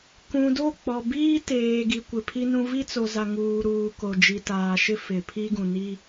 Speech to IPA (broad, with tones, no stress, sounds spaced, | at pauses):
k ũ˨ d o˦˨ k͡p ɔ˨ b iː˦ t eː˨ ɡ i˨ kʷ ɪ˨ pʰ i˦ n ũ˦ v i˦ t͡s o˨ z a˨ ŋ uː˨ ɾ uː˨ k o˨ d͡ʒ i˨ t aː˨ ʃ ɪ˦ f ɪ˨ pʰ i˦ ɡ ũ˨ n i˦